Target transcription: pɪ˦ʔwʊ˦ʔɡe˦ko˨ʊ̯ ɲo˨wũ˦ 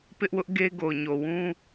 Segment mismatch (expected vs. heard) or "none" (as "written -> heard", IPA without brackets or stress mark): k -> ɡ